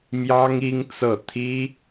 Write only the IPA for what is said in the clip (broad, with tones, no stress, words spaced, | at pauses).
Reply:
mjɑ˥ŋ i˥ŋt͡sɤ˥˩ t̪ʰi˥